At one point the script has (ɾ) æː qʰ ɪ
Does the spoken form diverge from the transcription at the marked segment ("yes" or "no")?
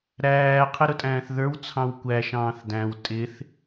no